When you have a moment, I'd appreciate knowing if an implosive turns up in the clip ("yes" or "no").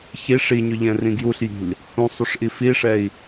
no